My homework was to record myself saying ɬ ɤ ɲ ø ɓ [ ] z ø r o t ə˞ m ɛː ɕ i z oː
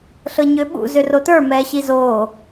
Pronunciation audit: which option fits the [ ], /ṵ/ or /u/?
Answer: ṵ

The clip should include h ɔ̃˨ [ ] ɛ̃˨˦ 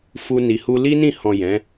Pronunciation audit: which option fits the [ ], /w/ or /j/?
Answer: j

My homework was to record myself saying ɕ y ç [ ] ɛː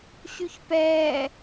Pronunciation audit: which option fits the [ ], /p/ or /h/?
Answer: p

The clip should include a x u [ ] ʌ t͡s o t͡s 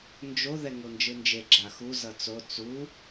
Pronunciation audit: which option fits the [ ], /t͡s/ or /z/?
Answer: z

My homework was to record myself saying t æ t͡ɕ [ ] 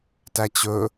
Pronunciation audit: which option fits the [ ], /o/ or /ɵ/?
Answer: ɵ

